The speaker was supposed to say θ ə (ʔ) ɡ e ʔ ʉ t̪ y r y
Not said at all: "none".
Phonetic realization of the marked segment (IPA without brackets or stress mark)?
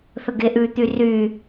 none